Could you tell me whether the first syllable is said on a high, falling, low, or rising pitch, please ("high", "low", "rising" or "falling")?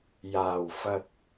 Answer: low